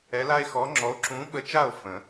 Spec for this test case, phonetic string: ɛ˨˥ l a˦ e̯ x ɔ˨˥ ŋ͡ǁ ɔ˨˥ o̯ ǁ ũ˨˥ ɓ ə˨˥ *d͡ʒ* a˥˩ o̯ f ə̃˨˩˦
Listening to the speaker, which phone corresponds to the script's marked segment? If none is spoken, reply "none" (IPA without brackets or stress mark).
t͡ʃ